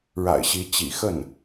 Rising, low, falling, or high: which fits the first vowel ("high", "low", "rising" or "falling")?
low